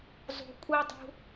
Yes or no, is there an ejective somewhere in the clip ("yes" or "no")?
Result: yes